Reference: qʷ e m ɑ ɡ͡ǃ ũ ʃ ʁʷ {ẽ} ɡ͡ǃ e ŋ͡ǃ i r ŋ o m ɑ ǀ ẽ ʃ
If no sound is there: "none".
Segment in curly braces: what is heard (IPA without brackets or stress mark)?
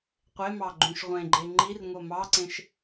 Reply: ẽ